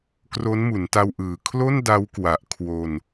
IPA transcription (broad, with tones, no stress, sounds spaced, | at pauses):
k r o˦˥ n m u˩˦ n t a˧ w ʔ ɯː˨˩ kʰ l o˥˩ n d a˦˥ w k w a˨˩ ʔ kʰ w o˧ n